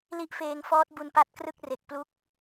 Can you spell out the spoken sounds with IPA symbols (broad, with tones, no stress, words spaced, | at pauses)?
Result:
li˦˥ʔfeː˧ŋfɔː˦˥t̚ bu˧npa˥˩t̚krɯ˥˩k̚re˨˩k̚ plu˥˩k̚